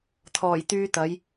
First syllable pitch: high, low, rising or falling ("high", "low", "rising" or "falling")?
low